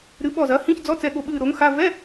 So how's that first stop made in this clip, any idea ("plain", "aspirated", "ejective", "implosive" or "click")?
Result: implosive